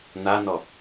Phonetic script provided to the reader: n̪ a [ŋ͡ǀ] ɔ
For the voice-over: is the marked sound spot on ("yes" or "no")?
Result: no